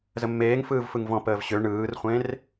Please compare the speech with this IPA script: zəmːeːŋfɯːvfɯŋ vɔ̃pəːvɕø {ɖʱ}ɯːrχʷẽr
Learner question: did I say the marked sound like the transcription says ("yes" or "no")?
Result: no